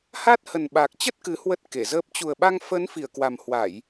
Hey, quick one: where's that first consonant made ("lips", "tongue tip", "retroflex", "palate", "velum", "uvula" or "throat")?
throat